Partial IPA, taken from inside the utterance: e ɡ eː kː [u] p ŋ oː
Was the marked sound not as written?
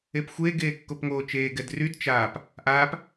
yes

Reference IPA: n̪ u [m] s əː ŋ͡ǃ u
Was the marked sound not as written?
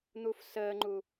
yes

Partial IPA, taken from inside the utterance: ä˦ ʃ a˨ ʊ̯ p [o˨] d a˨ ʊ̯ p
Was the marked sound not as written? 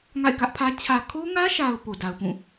no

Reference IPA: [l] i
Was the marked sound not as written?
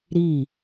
yes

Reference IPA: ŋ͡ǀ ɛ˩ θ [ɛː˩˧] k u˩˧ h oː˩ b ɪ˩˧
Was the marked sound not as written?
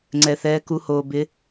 no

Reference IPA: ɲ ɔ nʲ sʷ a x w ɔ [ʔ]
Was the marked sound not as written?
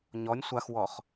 yes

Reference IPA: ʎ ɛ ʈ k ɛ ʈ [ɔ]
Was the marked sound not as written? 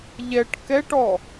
no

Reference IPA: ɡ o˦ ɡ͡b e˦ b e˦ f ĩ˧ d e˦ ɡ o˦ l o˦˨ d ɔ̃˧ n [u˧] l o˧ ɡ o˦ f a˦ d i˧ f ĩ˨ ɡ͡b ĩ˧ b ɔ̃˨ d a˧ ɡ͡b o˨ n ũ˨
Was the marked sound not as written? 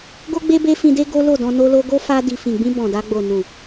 yes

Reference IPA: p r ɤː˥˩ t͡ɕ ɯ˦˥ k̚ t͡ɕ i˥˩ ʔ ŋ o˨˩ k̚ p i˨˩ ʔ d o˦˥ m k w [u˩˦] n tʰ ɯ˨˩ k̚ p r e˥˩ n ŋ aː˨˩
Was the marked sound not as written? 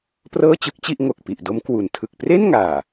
no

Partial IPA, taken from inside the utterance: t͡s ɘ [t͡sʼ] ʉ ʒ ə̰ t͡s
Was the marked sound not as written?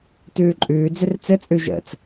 no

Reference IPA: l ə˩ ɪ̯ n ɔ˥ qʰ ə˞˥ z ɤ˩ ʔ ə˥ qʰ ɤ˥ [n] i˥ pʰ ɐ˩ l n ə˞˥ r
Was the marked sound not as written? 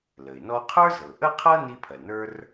no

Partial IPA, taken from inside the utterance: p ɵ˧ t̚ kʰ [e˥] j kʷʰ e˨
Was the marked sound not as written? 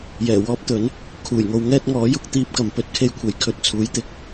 no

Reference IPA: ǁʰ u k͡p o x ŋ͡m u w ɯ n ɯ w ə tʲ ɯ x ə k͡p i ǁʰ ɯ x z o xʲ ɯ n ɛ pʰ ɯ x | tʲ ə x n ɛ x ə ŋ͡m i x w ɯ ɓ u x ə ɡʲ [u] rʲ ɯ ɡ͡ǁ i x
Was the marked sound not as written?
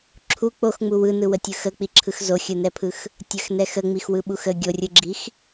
yes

